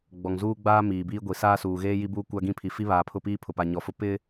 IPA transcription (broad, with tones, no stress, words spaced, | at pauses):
ɡ͡bɔ˨ŋ zuː˦ɡ͡baː˦ miː˨biː˦ ɡʷi˨saː˦suː˨ ɣeː˦ji˦ buː˦kʷa˦ɡĩ˦pʰi˨ fi˦βaː˨pʰʊ˦˨piː˦ pʰʊ˨pa˨ ɲɔ˨fʊ˦ pɪ˦